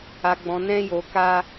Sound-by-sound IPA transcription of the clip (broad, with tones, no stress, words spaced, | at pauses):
a˧ɡ͡bɔ̃˧ nɛ̃˦jo˧ka˦